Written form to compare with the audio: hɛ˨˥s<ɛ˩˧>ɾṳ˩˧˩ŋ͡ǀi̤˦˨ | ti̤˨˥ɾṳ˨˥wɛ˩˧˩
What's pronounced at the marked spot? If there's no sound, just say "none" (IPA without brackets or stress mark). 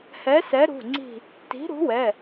ɛ˨˥